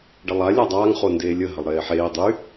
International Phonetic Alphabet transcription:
ɖ ʌ lˠ a lʲ a dˤ aː ŋ χ o n d eː lʲ ə ɦ ə lˠ ɾ eː ħ eː dˤ y

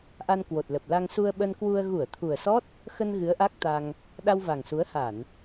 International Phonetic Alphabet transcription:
ʔ a˧ n k w o˨˩ t̚ l ə˨˩ p̚ l a˧ ŋ s u˧ ə̯ ɓ ə˧ n k w u˧ ə̯ ɣ u˧˩ ə̯ t̪ʰ u˨˩ ə̯ s ɔ˦˥ t̚ | x ə˧ n ɣ ɨ˨˦ ə̯ ʔ a˦˥ k̚ t̪ a˧ ŋ | ɗ a˧ w v a˨˩ ŋ s u˨˦ ə̯ h a˧˩˨ n

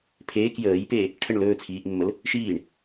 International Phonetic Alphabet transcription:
pʰ eː k j əː j p eː | ʈʰ ə ɳ l ɵː t͡sʰ iː ʔ mː ə l | ʃ iː ɳ

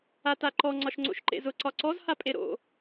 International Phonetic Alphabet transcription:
a t a ǃ ɔ ŋ͡ǀ ɒ ʃ ŋ͡ǀ o̰ ʃ ǃ ḛ z ʊ ǀ ɒ ǀ ɔ z h a pʼ e ɾ o̰

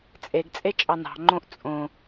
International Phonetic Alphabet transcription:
t͡sʼ e ɡ t͡sʼ e t͡ʃʼ ɑ n ɑ̤ ŋ͡ǃ õ ʔ t͡sʼ õ

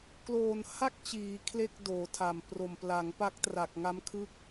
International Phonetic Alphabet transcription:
k l oː˨˩ n h a˥˩ k̚ t͡ɕ iː˩˦ kʰ l e˥˩ k̚ d oː˩˦ tʰ a˨˩ m p r o˨˩ m p l a˩˦ ŋ p a˦˥ k̚ t r a˨˩ k̚ ŋ a˦˥ m kʰ ɯ˦˥ k̚

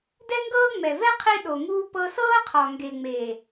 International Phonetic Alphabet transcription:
d ɛ˦ ŋ ɡ ɤː˦ ŋ͡m ɛ˨ v ɛ˦ qʰ i˦ ɗ o˨ ŋ uː˧ p ɤ˧ s ɤː˦ qʰ ɔ˨ ŋ ɡ e˨ ŋ͡m eː˨

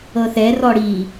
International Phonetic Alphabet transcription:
ɤ θ ɛ r ɔ ɽ i

